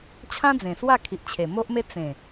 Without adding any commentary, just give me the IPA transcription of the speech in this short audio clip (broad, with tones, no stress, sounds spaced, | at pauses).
t͡ɕʰ ã˦ d͡z ẽ˨˩ s w a˥˧ kʰ i˨ ʔ t͡ɕʰ e˨˩ m o˦ ʔ m e˦ t͡s ẽ˨˩